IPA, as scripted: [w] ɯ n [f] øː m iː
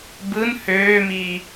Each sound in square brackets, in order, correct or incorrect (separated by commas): incorrect, incorrect